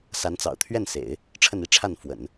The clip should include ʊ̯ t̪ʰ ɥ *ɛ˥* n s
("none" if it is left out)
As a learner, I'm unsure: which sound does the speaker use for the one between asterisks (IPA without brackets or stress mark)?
ɛ˥˩